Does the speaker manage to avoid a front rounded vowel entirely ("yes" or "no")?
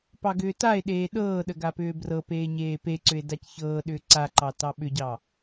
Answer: no